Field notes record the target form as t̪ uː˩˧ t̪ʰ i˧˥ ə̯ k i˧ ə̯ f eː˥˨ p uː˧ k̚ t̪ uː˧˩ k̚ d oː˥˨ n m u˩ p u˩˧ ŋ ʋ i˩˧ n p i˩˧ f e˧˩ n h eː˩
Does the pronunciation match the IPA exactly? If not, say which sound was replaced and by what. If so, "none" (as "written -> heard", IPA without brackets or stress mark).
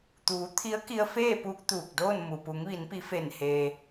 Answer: none